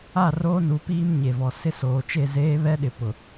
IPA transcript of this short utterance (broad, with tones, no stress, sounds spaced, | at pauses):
a˦˨ r oː˦ n u˨˦ p iː˦ m ɲ e˨ v ɔ˨ s ɪ˦ s oː˨ t͡ʃ e˦˨ z eː˦ β ɛ˦ ɗ ɪ˨ p ʊ˨